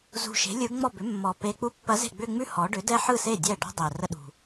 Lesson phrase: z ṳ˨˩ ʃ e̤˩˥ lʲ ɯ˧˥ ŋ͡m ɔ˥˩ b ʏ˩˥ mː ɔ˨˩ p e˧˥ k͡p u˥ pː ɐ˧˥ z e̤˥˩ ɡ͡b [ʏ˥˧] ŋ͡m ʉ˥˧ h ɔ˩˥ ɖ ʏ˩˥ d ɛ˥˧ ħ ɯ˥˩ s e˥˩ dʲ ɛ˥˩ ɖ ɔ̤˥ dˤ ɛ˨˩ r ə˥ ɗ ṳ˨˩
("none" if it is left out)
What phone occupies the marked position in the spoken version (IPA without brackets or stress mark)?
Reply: ʏ˥˧